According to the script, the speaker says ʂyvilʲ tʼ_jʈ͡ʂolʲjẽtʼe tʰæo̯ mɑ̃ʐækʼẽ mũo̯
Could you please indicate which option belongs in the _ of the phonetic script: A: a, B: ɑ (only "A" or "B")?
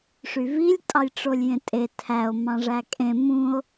B